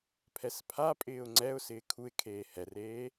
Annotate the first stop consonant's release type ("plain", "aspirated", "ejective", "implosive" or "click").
aspirated